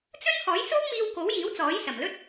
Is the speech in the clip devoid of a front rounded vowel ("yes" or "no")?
yes